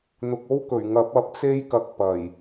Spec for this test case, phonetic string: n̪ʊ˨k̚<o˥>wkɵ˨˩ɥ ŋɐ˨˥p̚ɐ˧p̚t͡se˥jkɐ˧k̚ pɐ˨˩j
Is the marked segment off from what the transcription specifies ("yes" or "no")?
no